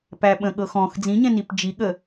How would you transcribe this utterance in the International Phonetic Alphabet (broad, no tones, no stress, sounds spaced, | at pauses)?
p æ ɓ ə̃ ɠ ɤ x ɔ̃ x d͡z ĩ ɲ ɛ̃ n i p d͡ʒ i ɠ ə